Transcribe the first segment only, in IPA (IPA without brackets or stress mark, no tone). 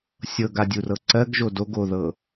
sʲ